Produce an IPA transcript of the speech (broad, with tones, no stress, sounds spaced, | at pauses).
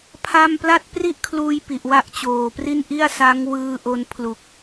pʰ a˥˩ m p l a˥˩ t̚ p r i˥˩ ʔ kʰ l uː˧ j p i˨˩ ʔ w a˥˩ ʔ t͡ɕ oː˨˩ p r i˥˩ n ʔ i˥˩ a̯ s a˦˥ ŋ w ɯː˧ ʔ o˧ n pʰ l u˨˩ k̚